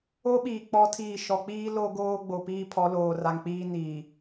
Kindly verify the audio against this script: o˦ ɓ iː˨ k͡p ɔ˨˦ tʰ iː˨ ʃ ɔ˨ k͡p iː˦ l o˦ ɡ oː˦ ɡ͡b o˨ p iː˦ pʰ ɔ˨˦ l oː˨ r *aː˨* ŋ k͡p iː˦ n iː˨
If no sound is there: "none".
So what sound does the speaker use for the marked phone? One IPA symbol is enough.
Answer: a˨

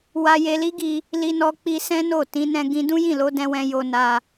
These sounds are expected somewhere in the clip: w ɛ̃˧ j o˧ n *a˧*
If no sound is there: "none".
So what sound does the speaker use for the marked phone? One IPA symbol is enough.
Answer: a˧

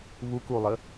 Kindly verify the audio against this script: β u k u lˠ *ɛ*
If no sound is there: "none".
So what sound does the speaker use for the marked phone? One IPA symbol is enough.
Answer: ə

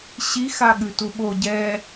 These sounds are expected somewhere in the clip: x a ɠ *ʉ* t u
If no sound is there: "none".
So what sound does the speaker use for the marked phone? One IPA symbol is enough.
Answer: ʉ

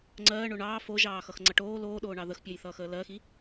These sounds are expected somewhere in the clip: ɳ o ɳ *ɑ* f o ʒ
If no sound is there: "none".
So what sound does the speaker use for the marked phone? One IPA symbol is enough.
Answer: ɑː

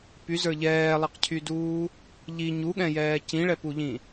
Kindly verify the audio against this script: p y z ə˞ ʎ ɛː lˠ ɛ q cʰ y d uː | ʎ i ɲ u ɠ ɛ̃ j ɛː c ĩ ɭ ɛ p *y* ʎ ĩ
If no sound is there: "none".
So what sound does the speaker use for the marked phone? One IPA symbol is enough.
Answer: u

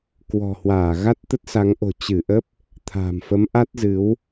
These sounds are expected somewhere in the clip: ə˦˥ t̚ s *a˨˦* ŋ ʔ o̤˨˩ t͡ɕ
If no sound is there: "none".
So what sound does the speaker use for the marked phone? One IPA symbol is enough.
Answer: a˨˦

